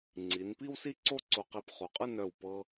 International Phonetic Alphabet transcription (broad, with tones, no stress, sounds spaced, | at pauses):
ŋ͡ǀ i˩˧ n p i˥ w s i˥ ǀ o˥˧ ǀ o˧ q i˧ p χ o˩˧ qʼ ɯ˥˧ n œ˧˩ w p ɤ˧